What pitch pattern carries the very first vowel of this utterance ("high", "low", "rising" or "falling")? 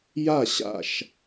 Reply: falling